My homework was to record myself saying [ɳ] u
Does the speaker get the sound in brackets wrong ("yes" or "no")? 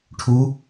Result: yes